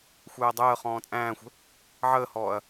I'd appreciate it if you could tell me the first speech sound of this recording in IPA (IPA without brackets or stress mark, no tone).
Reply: xʷ